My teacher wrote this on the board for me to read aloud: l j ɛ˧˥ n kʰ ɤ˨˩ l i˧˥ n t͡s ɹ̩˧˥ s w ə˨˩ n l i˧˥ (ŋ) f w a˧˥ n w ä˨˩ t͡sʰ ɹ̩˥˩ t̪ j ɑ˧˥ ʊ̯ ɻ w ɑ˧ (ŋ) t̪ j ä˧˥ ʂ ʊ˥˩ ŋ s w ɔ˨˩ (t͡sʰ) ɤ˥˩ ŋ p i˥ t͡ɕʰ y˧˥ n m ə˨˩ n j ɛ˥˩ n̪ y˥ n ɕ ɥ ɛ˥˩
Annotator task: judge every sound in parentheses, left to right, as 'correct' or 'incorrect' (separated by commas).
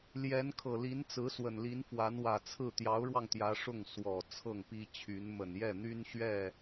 incorrect, correct, correct